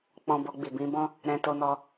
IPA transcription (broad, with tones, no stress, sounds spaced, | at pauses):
k͡p ɔ̃˨ b o˧ ɡ͡b i˨ b ĩ˧ b ɔ̃˦ | ɾ ɛ̃˧ t o˧ n ɔ˧